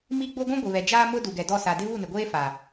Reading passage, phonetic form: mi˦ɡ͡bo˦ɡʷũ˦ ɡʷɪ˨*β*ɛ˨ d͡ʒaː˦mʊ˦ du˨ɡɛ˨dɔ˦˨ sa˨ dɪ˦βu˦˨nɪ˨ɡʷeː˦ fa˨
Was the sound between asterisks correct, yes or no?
yes